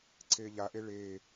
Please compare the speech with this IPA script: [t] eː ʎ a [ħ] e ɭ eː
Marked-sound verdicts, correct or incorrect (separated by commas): incorrect, incorrect